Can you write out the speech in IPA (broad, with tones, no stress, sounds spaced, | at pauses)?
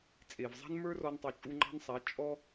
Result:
t͡sʼ e˨ v zˤ a̤˦ n m ə˞˦ r ɔ˧ n tˤ u˨ t͡ʃʼ u˧ ŋ͡ǃ ɑ̤˦ n sˤ a˨˦ t͡ʃʼ ɔ˦